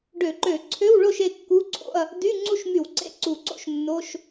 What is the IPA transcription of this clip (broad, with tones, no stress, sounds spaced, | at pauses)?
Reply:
ɖ ø˧˩˧ ǃ ø˧˩˧ ǀʰ ø˧˥˧ w ɭ o˥˨ ʃ e˥˨ kː u˧˥˧ ǀʰ o̰˧˥˧ ɐ̯ | d y˧˥˧ ŋ͡ǀ u˥˨ ʃ m y˧˩˧ w ǀ ḛ˧˥˧ ǀ u˧˩˧ ǀ o̰˥˨ ʃ nː o˧˥˧ ʃ